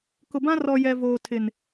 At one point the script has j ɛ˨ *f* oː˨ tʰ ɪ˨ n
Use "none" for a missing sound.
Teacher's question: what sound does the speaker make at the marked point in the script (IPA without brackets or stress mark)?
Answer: v